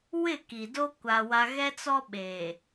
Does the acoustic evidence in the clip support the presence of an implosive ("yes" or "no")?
yes